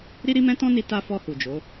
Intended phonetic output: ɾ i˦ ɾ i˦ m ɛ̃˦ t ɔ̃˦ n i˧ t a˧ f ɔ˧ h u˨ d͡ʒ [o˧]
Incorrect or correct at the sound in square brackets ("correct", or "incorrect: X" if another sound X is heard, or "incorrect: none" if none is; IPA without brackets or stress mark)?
incorrect: o˨˦